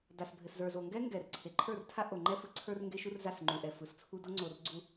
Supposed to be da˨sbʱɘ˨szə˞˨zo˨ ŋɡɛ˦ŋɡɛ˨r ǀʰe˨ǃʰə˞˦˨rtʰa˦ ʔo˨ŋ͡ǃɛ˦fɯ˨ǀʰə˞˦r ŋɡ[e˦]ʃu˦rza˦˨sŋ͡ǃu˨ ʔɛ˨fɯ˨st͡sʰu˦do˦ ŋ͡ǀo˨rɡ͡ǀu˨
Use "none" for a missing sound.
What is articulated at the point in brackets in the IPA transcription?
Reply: e˦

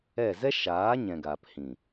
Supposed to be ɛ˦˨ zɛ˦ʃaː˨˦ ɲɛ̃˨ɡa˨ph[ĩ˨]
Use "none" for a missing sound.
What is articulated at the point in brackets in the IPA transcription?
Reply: ĩ˨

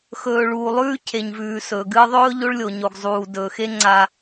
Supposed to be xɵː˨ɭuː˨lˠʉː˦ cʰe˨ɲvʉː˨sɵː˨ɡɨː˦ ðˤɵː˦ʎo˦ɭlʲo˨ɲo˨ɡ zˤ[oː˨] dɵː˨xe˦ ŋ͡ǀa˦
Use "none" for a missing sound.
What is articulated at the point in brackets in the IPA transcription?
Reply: uː˨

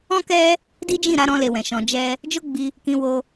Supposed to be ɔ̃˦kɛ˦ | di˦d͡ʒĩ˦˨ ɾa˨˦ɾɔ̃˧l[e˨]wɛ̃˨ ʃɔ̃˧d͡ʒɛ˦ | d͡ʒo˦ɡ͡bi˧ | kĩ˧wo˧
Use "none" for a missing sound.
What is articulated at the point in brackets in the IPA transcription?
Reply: e˨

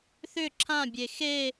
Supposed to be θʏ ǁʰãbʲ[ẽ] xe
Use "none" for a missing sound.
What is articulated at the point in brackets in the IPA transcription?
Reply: e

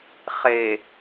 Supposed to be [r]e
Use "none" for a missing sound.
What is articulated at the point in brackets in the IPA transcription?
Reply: χ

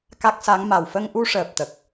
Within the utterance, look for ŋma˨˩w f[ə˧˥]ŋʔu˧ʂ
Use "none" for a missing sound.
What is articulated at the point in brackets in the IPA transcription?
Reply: ə˧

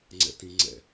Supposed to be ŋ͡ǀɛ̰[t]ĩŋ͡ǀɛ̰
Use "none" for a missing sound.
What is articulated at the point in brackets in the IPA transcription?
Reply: t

